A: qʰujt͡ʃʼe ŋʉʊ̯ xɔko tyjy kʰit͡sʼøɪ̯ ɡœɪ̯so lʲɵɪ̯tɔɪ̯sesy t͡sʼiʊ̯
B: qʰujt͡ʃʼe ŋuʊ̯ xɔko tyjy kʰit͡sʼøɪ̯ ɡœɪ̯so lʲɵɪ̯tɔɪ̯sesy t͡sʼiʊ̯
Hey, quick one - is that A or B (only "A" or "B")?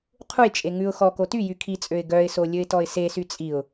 A